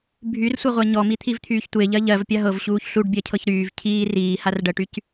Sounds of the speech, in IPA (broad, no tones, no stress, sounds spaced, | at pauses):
bʱ y r sʷ ɜ ʁʷ ɜ ɲ ɔ m i t̪ʰ i v t̪ʰ yː ç tʷ e ʎ ɜ ʎ ɜ v pʲ a ɦ ɤ v ɕ uː ç ɬ u ɖ bʲ ɜ cʰ ɤ ç ɾ yː v cʰ iː r iː h a r ɖ ɜ ʈ y c